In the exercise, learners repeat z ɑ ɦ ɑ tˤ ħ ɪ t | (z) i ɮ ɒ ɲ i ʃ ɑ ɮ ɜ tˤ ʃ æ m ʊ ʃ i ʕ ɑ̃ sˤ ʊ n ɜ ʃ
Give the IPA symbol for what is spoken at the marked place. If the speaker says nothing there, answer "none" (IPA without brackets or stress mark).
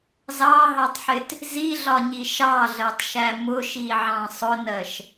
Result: z